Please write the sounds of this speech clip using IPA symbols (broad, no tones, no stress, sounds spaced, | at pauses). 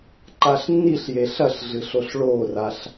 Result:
ǃ a ɬ nː i ɬ j e ɬ ɐ ɬ ɮ ɨ ɬ o ɬ ɭ o r a ɬ